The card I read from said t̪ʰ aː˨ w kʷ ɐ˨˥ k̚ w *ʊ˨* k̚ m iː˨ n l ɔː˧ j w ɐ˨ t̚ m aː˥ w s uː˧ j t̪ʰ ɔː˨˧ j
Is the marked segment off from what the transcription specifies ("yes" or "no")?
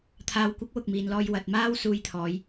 no